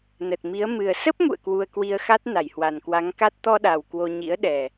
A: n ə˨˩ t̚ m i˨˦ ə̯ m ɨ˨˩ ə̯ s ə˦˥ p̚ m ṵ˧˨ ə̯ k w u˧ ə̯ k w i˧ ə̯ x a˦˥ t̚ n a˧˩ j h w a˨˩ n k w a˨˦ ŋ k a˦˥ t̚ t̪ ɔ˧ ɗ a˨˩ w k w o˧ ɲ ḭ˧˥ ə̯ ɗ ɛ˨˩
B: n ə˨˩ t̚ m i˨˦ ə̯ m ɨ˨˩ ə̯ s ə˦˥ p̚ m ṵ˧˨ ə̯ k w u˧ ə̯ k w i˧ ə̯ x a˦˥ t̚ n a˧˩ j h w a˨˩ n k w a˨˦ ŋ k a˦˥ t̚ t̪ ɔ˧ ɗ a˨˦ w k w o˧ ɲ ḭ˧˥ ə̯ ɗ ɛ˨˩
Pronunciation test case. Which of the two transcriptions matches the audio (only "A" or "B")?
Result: A